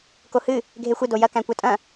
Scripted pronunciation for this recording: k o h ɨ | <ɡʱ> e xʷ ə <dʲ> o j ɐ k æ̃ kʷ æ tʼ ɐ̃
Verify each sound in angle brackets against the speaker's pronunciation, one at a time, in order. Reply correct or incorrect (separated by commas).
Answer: correct, incorrect